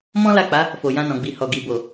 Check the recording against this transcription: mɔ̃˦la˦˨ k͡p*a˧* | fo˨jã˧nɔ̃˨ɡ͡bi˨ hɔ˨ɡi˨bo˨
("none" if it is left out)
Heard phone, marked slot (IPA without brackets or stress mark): a˨˦